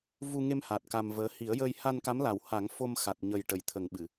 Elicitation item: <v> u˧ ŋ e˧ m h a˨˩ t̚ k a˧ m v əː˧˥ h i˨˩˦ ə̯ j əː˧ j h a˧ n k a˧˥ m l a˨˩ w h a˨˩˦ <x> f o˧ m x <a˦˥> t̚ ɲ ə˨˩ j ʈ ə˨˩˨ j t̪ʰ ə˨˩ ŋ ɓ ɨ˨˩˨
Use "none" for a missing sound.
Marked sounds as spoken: v, ŋ, a˨˩

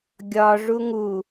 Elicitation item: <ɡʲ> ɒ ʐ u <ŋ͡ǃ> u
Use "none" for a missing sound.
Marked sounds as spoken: ɡʲ, ŋ

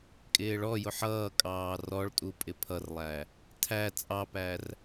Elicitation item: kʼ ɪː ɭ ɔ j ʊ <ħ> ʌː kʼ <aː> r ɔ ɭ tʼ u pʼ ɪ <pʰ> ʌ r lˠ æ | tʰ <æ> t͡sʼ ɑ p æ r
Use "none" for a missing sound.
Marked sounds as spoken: ħ, ɑː, pʰ, æ

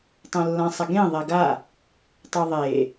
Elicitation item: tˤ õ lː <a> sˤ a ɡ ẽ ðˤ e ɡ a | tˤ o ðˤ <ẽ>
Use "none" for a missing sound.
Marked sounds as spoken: ã, e

